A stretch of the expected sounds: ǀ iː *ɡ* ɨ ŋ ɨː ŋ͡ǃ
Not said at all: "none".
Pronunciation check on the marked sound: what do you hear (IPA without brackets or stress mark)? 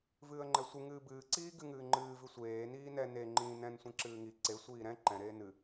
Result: ɡ